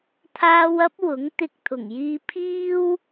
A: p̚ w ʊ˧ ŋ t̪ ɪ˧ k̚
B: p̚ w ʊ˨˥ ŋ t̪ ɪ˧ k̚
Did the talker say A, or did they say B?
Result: B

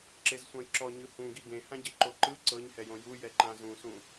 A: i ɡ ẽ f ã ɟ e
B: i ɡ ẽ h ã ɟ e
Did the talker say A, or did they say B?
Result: B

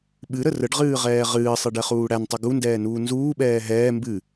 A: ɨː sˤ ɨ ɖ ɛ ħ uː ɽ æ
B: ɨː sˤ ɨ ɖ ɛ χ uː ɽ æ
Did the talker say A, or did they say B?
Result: B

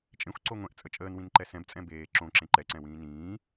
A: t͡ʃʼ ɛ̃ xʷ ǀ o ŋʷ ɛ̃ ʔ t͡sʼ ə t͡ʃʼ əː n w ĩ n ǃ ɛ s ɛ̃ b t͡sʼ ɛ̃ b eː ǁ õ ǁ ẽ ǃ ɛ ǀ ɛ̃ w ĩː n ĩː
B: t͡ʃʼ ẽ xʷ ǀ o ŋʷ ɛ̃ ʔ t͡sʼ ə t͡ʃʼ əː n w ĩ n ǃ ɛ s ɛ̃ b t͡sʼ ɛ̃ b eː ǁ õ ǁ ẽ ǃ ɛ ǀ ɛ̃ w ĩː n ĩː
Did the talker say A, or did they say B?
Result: B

